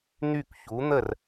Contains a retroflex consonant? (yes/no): no